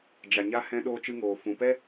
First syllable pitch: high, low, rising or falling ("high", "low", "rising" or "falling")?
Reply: low